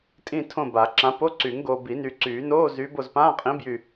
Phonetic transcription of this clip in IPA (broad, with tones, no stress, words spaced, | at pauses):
tʼĩ˦˨tʰõ˦˨ ba˨˩˦ǁã˨˥ po˧˥˧ǀy˨˩˦ŋɡoː˨ bi˨˩˦nyː˨ǀyː˨˩˦noː˧˥˧ zyː˨˥b o˨zpãː˧˥˧qʼĩ˨˥ bjy˦˨